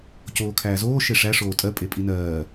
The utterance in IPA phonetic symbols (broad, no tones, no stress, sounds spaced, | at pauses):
c oː kʰ æː z oː ʃ e ʂ æ ʂ oː tʼ ɜ pʼ e pʼ i n ɜː